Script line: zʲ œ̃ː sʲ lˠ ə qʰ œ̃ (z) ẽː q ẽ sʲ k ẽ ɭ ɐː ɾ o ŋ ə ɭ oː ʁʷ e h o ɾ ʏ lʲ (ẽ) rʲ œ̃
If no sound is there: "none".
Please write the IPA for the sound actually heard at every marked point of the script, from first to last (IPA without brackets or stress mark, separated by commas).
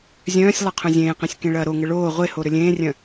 zʲ, ẽː